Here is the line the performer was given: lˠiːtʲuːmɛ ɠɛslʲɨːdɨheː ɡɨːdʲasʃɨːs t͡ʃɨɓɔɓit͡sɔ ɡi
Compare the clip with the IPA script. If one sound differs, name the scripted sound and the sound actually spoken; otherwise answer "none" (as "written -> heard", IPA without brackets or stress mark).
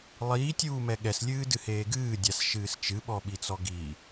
none